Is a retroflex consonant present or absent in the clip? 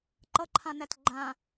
absent